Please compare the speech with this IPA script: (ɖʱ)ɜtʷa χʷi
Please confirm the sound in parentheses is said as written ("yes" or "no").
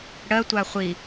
no